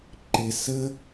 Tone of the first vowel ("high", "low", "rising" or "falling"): low